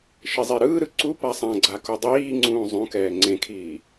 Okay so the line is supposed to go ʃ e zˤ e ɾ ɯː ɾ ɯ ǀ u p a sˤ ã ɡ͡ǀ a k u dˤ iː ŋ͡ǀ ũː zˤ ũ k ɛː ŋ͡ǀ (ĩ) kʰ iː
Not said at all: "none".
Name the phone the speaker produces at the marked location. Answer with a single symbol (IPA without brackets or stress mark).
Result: ẽ